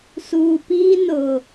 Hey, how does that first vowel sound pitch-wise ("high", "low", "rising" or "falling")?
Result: low